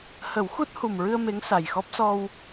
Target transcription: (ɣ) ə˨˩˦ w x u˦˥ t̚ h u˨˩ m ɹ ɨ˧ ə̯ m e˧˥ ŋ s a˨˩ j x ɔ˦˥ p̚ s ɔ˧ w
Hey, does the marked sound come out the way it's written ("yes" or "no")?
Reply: no